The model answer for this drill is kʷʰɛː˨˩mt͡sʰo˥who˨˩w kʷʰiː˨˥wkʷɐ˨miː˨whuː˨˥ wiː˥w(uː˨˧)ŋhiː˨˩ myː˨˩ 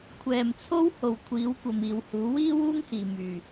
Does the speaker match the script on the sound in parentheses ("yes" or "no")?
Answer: no